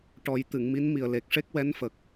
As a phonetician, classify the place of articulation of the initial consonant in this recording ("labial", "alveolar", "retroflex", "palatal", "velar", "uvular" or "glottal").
retroflex